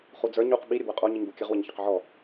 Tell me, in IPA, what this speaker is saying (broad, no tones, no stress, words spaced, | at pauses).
χud͡zə˞ɲ uq ɓi ɾʲəbwəqʼo ɲiɲbukʲəʁ wəɲçəqʕɔ